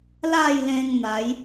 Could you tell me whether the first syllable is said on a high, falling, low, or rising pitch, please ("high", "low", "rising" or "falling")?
falling